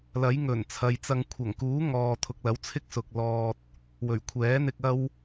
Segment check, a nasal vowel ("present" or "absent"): absent